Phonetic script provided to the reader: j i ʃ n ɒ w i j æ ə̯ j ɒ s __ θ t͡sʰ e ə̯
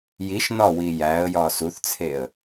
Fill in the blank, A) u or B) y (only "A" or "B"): A